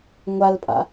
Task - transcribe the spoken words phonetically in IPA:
ŋʷ a l pʼ a̰

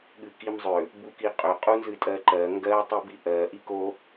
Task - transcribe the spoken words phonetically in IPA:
ɠ ɨ k i m zˤ ʏ | b u k i qʼ ʏ qʼ u n z ɨ tʼ ɜ ǃ ɜ ŋ ɡ ɜ tˤ i b i ʔ ɜ ʔ i k o

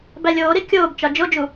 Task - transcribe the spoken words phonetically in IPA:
b æ lʲ oː ɾ i kʲ oː b t͡ʃ ɒ d͡ʒ o d͡ʒ u

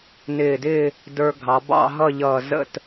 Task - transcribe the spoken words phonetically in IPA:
n ɪː˧˩ d ɪː˥˧ | d ə˞˧ ɡʱ ɑ˩˧ b ɑ̰˥˧ ɦ ʌ˥˧ ʎ ʌː˧˩ z ə̰˥˧ t

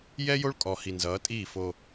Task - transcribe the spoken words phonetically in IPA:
j ɛ˦ j o˦ ɭ kʼ ɔ˨ h i˨ n z ʌː˨˦ tʼ iː˦˨ f o˦

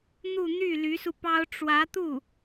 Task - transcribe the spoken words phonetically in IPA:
n̪ u˥˧ n̪ y˥˩ l y˧˥ s u˧ p ɑ˥ ʊ̯ ʈ͡ʂ w ä˧˥ t̪ u˥˩

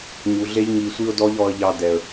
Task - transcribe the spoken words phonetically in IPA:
ɲ u˨ ɮ e˦ ʎ ŋ i˧ sʷ i˦ ʊ̯ d ɔ˦ ʎ ɔ˧ ə̯ ʎ ɑ˧ d ɛ˨ ə̯

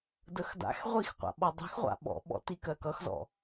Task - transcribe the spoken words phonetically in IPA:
d ə x d a̰ x ʁʷ i x qʷ a̰ ɓ ɔ dˤ i̤ x ʁʷ a̰ ɓ ɔ̰ ɓ ɔ̰ t i k ɜ k ʌ x z ɔ̰

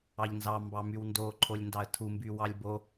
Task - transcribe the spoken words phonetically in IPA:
ɑ ʎ n z ɑ m b ɑ m y w n d o ǃʰ o lʲ n d ɑ ə̯ tʰ u m b y w ɑ lʲ b o

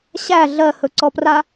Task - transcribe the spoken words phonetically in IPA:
ɕ æ ɮ ɜ h ɵ ǀ ɔ p r a

